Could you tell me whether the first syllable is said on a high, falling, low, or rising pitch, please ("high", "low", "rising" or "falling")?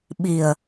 low